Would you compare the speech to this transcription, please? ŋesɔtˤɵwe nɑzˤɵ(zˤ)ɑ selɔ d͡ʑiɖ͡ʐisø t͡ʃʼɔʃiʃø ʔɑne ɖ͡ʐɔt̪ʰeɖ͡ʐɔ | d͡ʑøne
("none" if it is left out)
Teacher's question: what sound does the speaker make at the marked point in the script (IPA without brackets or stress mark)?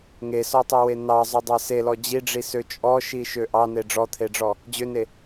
dˤ